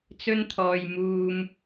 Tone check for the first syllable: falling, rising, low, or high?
high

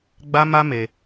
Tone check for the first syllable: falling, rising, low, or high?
high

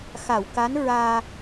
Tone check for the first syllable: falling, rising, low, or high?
low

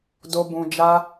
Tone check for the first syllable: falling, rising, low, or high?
low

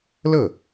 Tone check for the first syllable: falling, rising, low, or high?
falling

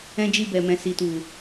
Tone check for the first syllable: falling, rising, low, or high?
high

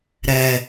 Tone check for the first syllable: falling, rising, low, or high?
low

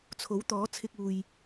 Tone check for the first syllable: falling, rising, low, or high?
rising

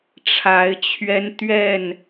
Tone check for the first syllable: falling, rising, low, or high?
rising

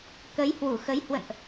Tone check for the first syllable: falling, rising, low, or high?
rising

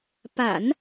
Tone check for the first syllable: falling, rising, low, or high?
low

